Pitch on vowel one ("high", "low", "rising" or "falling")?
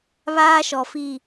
high